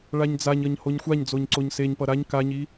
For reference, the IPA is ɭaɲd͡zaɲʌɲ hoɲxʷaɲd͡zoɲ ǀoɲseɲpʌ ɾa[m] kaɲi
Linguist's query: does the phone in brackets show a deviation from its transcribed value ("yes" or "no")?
yes